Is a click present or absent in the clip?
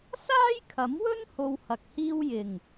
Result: absent